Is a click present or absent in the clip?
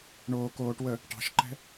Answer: present